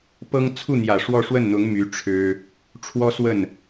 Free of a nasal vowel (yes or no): yes